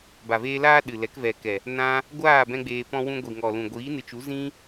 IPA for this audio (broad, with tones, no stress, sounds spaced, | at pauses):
b a˨ v eː˧ l aː˦ ɗ ɨ˨ l ɛ˨˦ k v ɛ˨ k ɛ˨ | n ã˧ | ɡʷ aː˦˨ b ɛ̃˦ ɡ͡b eː˧ p ɔ̃˦ w ũ˦ ɡʷ i˨ ŋ ɔ˨ l ũ˨ ɡʷ iː˨˦ n ɨ˨ t͡ʃ u˨˦ z ĩ˦